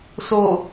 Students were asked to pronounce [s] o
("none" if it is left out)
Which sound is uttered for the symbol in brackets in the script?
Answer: s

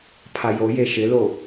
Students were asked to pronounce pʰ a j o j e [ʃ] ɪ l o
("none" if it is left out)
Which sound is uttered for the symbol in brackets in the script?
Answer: ʃ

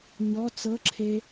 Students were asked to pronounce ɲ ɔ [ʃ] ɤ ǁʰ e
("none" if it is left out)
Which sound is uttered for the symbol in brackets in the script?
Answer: t͡s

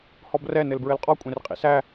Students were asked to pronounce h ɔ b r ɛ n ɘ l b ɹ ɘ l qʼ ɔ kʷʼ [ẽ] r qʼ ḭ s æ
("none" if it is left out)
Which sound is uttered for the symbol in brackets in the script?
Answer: ẽ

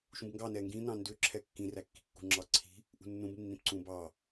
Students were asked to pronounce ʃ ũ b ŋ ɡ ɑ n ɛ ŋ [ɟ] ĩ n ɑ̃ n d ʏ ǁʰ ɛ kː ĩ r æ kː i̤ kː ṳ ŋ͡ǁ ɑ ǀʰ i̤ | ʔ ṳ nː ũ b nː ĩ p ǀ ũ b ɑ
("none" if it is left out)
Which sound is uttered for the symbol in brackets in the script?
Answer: ɡ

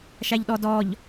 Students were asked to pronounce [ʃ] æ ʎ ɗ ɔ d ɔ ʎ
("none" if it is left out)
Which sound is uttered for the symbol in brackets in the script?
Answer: ʃ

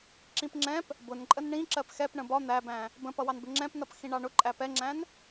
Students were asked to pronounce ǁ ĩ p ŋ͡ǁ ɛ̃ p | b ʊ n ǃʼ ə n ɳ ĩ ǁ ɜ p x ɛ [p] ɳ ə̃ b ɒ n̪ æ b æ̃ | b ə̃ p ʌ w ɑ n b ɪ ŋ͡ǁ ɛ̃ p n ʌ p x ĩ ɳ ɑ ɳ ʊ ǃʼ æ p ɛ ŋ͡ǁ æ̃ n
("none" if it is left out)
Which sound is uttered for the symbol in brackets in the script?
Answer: p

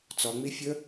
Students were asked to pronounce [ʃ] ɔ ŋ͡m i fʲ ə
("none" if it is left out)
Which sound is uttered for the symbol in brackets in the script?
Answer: t͡s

